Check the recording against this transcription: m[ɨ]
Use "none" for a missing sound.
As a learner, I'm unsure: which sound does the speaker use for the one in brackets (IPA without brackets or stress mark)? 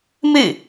ɨ